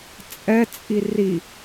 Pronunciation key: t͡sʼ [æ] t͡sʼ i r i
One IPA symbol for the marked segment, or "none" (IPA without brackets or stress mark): ɛ